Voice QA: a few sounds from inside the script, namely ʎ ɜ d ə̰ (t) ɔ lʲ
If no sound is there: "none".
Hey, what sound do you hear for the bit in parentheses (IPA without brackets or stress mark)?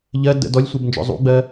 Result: d